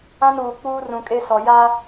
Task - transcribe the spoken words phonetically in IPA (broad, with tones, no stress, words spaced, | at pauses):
ã˦nuː˨ k͡puː˦rũ˨kʼe˦sɔ˨ ja˦